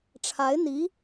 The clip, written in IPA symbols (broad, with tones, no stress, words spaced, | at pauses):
ʈ͡ʂʰa˧˥ɪ̯n̪i˧˥